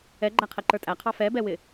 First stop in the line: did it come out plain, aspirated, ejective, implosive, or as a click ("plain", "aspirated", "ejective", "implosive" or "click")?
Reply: click